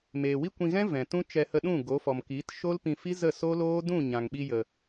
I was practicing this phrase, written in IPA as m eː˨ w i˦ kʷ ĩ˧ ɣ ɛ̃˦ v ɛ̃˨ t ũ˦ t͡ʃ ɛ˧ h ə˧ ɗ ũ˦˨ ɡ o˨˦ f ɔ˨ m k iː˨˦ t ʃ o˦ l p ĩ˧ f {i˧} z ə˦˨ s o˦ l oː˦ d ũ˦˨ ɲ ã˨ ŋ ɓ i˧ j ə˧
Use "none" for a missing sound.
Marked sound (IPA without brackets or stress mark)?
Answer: i˦